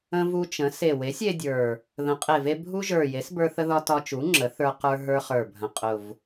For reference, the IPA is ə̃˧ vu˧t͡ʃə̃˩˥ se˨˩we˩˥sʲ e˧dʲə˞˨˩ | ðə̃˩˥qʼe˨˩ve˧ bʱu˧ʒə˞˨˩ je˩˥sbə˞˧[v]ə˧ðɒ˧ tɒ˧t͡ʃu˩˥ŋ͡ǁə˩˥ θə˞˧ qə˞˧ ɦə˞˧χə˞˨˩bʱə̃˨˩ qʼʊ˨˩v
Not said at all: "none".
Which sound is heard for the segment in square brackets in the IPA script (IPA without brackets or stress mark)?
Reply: θ